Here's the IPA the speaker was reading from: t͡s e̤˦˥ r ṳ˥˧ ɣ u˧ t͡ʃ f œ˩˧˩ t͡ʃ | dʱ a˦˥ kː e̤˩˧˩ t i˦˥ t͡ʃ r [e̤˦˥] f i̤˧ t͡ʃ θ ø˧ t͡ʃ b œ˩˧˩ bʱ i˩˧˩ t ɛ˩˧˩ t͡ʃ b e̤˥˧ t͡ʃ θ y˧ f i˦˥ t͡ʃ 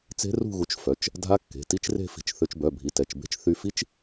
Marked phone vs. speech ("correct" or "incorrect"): incorrect